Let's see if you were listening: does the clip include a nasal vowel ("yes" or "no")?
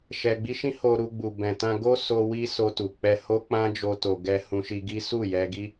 yes